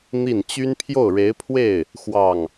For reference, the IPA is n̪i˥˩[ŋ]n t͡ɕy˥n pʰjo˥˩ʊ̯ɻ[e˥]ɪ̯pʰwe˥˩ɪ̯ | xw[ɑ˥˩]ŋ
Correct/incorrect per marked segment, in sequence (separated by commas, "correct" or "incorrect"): incorrect, incorrect, correct